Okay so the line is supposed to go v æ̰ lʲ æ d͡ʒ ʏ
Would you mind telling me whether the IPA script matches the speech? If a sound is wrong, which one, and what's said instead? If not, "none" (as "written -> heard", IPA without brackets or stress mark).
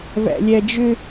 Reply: none